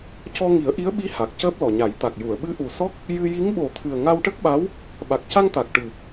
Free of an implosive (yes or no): no